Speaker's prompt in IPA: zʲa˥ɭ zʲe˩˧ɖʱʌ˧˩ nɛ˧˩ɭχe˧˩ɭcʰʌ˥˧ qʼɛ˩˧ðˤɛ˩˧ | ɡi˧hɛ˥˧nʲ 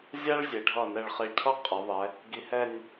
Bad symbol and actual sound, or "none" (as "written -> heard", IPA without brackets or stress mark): none